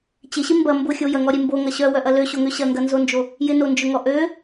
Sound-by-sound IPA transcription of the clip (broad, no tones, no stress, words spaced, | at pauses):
t͡ɕɪɕɪ mbɐ mbʊ xʲojɐŋɔɾʲe mboŋɐ ɕœwœʔɐ løɕoŋø ɕɐŋɡɐnzond͡ʒo | jɪnond͡ʒʊŋɔ ʔø